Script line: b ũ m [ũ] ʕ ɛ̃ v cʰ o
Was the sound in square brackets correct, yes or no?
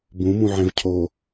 yes